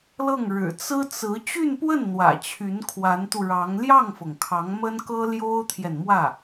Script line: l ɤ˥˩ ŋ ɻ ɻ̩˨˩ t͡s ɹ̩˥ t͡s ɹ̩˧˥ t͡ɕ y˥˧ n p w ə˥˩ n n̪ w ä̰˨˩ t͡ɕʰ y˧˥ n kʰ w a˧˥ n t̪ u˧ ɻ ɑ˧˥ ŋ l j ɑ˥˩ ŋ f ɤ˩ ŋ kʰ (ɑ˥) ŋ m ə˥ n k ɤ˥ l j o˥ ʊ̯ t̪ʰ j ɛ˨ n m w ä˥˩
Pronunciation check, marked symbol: incorrect: ɑ˧˥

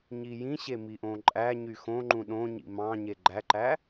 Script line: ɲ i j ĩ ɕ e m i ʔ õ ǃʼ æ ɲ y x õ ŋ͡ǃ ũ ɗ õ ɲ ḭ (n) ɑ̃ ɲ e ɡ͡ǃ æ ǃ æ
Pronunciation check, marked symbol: incorrect: m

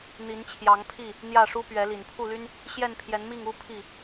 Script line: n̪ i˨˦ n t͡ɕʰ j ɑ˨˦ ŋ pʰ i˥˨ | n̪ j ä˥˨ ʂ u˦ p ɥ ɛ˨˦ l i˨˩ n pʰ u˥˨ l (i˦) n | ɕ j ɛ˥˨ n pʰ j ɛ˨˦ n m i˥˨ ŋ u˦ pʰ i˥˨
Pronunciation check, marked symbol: incorrect: y˦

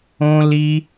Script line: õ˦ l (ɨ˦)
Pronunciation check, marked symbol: incorrect: i˦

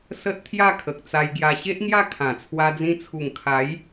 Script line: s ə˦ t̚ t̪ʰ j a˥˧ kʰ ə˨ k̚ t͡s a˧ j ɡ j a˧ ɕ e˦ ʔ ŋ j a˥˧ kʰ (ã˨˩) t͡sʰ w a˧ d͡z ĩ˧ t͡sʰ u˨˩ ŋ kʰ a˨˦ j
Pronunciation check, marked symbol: correct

